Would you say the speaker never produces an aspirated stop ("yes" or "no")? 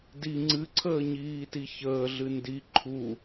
no